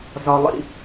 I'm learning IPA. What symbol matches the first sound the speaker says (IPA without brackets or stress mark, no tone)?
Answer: z